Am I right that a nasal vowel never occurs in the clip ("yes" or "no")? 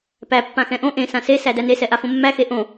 no